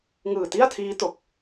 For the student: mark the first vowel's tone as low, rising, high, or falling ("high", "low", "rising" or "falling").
low